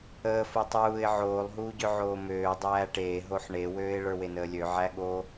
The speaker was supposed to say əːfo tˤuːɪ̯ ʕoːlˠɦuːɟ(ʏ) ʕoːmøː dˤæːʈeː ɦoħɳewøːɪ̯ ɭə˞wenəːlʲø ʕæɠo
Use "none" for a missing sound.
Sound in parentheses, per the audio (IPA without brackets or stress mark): ʏ